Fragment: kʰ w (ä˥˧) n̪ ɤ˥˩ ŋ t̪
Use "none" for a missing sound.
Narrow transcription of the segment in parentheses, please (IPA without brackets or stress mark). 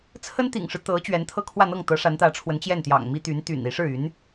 ä˥˧